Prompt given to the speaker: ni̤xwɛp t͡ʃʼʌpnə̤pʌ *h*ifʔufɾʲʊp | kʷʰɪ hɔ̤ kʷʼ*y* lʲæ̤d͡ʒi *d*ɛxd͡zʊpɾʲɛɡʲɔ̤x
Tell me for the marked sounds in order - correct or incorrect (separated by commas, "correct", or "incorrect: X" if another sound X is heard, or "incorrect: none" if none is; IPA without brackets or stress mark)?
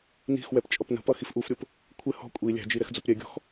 incorrect: x, incorrect: i, incorrect: ɾ